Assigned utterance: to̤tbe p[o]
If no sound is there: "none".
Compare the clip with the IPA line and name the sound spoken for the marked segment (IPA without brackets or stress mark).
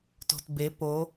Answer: o